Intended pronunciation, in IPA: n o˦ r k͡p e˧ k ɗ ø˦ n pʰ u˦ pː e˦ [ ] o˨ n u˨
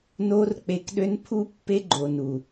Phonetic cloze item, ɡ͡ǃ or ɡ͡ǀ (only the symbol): ɡ͡ǃ